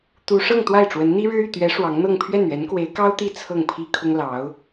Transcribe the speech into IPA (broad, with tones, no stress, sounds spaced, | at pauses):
t̪ u˥ ʂ ɤ˥˧ ŋ t̪ w a˥˩ ɪ̯ ʈ͡ʂ w ə˧˥ n n̪ i˥ ɻ ɻ̩˥ y˥˩ t̪ ɥ ɛ˧˥ ʂ w ɑ˧˥ ŋ n̪ ɤ˥˧ ŋ pʰ ɥ ɛ˥˩ n ɥ ɛ˧˥ n k w e˧˥ ɪ̯ k ɑ˥ ʊ̯ t̪ i˥˧ t͡sʰ ɤ˥˩ ŋ pʰ i˥ kʰ ʊ˥ ŋ l ɑ˧˥ ʊ̯